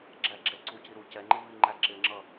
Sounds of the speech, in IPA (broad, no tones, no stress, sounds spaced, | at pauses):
ɡ͡ǁ æ ɡ͡ǁ ɛ ǀ u c i ɾ u c ɛ ŋ͡ǃ ɪ v i ŋ͡ǃ æ ǁ ɪ ŋ͡ǁ ʌ